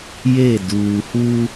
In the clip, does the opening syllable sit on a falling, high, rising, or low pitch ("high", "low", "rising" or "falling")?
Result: falling